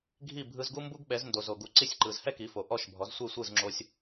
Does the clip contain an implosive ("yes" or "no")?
yes